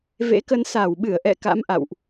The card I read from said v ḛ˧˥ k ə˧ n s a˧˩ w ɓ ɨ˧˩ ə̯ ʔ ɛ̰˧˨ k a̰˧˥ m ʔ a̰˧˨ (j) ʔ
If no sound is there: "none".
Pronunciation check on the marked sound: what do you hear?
w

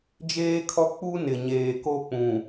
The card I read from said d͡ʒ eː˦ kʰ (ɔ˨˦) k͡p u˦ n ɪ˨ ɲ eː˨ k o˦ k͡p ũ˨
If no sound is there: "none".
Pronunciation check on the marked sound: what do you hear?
ɔ˦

